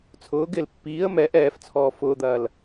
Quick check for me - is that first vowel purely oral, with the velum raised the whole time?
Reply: yes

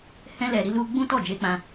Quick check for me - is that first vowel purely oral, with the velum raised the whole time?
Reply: no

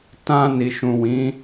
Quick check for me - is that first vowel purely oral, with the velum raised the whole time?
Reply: no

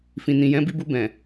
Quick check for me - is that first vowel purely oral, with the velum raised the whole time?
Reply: no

